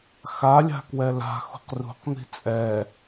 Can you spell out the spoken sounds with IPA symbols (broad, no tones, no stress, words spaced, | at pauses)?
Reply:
xa lʲa̤kwɛla̤xṳq rṳqn̪i̤ t͡sʼɛ